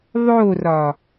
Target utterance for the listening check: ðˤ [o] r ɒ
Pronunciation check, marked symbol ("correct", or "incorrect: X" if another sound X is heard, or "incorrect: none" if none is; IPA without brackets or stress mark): correct